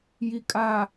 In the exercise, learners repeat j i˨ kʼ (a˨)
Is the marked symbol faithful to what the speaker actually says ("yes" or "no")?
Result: yes